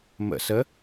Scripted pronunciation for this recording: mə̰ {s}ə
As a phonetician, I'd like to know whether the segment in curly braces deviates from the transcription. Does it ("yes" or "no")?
no